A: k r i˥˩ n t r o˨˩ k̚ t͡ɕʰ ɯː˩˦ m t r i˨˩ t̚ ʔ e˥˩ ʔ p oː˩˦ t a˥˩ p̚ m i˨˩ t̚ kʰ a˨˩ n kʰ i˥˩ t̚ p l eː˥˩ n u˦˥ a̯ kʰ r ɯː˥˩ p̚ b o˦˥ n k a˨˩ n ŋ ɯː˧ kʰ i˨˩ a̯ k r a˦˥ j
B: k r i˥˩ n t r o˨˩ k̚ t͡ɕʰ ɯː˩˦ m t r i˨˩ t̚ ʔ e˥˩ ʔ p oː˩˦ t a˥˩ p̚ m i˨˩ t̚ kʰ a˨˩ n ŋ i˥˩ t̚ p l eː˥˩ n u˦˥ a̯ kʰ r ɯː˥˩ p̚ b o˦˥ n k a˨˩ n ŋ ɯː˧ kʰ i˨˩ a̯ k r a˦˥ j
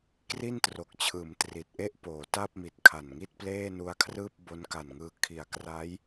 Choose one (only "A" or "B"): B